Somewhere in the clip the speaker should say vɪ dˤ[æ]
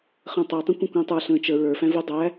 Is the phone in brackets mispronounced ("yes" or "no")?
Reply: no